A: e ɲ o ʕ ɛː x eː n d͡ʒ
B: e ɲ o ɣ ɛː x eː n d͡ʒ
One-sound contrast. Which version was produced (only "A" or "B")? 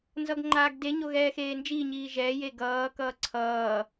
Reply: B